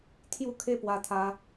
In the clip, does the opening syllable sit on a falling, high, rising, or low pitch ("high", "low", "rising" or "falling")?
falling